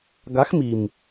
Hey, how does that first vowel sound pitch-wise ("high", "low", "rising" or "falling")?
rising